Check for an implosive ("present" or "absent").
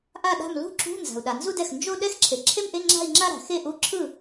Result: present